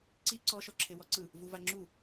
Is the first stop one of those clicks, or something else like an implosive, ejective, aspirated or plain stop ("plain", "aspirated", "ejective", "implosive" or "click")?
click